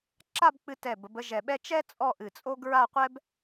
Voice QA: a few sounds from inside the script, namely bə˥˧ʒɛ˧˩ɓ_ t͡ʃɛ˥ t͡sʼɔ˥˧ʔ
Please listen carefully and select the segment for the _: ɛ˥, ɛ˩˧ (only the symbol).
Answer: ɛ˥